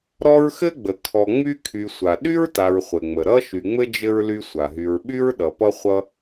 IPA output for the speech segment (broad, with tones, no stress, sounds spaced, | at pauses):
ɾ ɔ˦ ɹ x ɘ˥ ɡ͡b ə˩ kʰ ɔ˨ ŋ͡m y˦ kʰ y˨ sʷ a˩ ɗ y˥ ɹ t a˨ ɹ χʷ ɘ˩ ŋ͡m ə˩ ɾ ʌ˥ ʃ y˨ ŋ͡m ɘ˥ d͡ʒ ɘ˥ ɹ l y˦ sʷ a˩ ɦ y˨ ɹ ɓ y˥ ɹ ɗ ʌ˨ p ʌ˥ χʷ ʌ˦